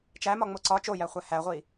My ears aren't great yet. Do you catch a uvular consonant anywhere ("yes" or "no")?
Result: yes